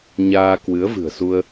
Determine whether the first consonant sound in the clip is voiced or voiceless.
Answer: voiced